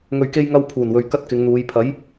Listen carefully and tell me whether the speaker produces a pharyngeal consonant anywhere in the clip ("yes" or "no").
no